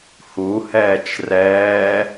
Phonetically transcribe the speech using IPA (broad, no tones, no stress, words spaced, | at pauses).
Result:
huhɛːt͡ʃ rɛː